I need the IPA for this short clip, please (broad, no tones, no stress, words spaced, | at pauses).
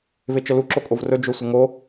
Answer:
vet͡ʃəlu ǁokʼovrɵ d͡ʒosʷəŋo